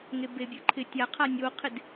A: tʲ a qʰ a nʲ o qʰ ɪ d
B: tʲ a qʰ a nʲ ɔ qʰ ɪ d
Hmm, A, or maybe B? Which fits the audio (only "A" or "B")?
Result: A